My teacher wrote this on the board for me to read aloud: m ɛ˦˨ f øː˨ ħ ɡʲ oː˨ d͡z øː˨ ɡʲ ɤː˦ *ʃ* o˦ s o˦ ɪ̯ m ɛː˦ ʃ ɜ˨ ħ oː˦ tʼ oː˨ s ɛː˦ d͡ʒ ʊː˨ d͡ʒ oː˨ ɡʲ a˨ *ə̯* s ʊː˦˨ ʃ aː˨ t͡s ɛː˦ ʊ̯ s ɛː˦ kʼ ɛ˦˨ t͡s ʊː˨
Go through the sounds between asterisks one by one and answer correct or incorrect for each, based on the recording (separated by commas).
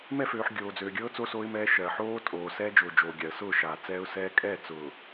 incorrect, correct